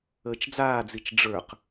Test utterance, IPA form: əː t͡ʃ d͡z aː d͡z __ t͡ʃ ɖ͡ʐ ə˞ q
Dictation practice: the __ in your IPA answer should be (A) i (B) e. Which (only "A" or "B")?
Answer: A